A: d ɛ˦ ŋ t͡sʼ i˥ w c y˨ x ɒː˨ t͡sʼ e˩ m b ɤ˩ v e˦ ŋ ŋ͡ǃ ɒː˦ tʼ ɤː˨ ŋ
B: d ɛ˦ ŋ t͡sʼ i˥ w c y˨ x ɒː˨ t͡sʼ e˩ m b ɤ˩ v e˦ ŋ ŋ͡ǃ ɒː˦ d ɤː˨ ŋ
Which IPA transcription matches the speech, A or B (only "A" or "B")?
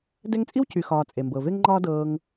B